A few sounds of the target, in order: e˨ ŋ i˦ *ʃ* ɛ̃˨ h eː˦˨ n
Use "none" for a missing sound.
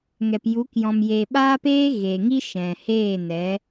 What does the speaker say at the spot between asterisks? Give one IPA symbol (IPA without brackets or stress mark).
ʃ